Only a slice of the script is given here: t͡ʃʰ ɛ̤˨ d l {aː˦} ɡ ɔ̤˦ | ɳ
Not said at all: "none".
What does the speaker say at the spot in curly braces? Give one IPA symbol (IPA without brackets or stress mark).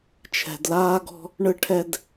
aː˦